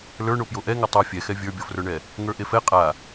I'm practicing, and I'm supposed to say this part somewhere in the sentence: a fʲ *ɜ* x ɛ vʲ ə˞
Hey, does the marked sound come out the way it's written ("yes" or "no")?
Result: no